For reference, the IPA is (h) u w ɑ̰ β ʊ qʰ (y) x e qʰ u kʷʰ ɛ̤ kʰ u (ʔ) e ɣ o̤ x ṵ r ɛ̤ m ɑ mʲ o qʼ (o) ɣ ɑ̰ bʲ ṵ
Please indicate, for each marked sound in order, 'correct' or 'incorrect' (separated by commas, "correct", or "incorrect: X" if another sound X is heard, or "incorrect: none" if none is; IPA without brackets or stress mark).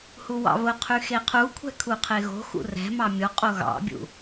correct, correct, incorrect: qʰ, correct